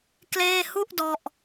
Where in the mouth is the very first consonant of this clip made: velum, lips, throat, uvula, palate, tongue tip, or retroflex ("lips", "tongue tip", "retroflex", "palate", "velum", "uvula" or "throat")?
velum